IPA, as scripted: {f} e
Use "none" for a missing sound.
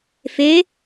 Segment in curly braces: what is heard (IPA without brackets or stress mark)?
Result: f